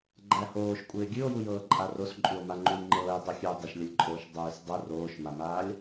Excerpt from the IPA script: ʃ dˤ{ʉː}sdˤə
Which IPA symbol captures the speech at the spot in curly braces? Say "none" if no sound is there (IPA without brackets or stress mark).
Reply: ʉː